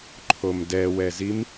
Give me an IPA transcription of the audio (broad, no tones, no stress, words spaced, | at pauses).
ǃʰomdɛwɛzim